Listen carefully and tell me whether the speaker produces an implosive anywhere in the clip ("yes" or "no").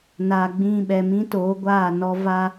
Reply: yes